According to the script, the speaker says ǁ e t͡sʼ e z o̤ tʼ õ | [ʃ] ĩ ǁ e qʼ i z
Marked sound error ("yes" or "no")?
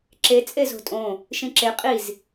no